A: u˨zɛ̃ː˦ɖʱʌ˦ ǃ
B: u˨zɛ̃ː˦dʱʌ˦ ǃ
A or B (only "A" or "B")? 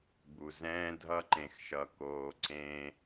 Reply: B